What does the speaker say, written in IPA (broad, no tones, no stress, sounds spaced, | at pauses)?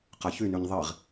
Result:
q a ç y n y ɲ ðˤ i ʁ